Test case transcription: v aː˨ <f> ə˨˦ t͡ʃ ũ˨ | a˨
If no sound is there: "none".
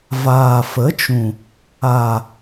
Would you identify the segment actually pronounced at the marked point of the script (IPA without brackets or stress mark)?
f